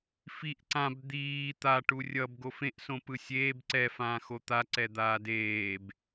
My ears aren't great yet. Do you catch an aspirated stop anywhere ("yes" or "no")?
no